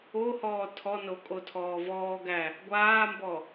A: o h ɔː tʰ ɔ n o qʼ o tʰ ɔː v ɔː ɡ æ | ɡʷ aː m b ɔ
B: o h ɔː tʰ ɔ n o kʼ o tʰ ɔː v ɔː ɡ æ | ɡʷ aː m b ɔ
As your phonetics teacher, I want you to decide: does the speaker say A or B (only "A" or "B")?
B